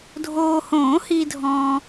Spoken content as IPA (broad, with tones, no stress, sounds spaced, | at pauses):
dʱ oː˨ h õː˨˩˦ h i˨ dʱ ɔ̃ː˨